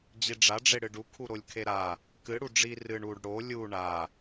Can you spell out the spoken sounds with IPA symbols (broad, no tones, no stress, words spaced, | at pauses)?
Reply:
d͡ʑiɖ͡ʐaɖ͡ʐe ɽɨɖu kʰuɾolʲkʰeɾa | kɨ ɽuɖ͡ʐi rɨɳ uɖ ɽo lʲu ɳa